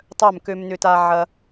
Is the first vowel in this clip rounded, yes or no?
yes